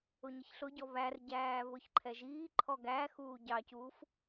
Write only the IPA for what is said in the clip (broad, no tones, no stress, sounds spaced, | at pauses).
ʊ ɲ ɪ ç ɬ ʊ ɟ ɔ β æ r ɟ æː β ʊ ç ǃʰ ɛ ʒ iː ǃʰ ɔ ɡ æ x uː ɟ ɑ c uː f